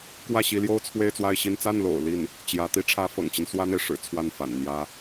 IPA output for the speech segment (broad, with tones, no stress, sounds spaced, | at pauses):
k w ä˥˩ ɕ i˧˥ l j o˥ ʊ̯ t͡sʰ w e˥˧ ɪ̯ t͡s w a˥˧ ɪ̯ ɕ i˥˧ n t͡s a˥˩ n l o̰˨˩ ʊ̯ l i˥˩ n | t͡ɕ j ä˧˥ t̪ i˧˥ ʈ͡ʂʰ ä˧˥ f ɤ̰˨˩ ŋ t͡ɕ i˦ n s w ä˥ n̪ e˨ ɪ̯ ʂ ɻ̩˨˩ t͡sʰ w a˥˩ n f a̰˨˩ n n̪ j ä˥